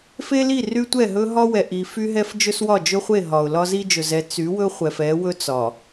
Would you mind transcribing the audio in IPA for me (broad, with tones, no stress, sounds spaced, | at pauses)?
f e˦ l i˦˨ r y˦ tʷ ɛ˦˨ ɦ ɵ˦ ɦ ɒ˦ w ɛ˨ ʔ i˨ f y˦ ɦ ɛ˦ f d͡ʒ ɵ˦ s w ɒ˦˨ d͡ʒ ɵ˦ χʷ e˦˨ ɦ ɒ˨ ʊ̯ l ɒ˦ z i˦ d͡ʒ ɵ˨ z ɛ˨˦ t͡s y˨˦ w ɵ˦ χʷ ɛ˨ f ɛ˨˦ w ɵ˦ t͡s ɒ˨